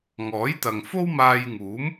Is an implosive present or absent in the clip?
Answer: absent